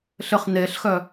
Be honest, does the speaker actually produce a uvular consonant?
yes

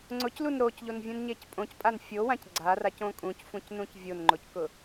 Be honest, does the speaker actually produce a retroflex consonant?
no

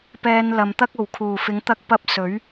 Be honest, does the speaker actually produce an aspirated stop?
yes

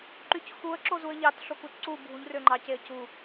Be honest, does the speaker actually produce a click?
yes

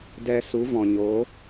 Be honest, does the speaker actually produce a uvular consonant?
no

